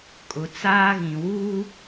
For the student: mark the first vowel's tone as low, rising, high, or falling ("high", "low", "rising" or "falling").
low